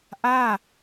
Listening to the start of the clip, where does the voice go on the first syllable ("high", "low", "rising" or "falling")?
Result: falling